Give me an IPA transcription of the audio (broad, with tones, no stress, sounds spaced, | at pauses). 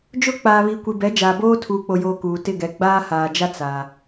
d͡ʒ ʊ˦˨ k͡p aː˨ β iː˨ kʷ i˨ b ɛ˨˦ d͡ʒ aː˨ b oː˦ tʰ uː˨ k͡p o˨ j oː˨ k uː˨ t ɪ˦˨ ɡ ɛ˨ ɡ͡b aː˦ h aː˨ d͡ʒ a˦ t͡s a˨